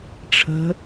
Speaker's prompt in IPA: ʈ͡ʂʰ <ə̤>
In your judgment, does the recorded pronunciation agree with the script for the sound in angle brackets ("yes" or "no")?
yes